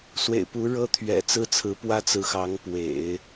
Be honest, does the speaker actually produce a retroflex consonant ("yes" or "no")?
yes